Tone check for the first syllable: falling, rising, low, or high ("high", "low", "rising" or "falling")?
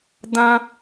high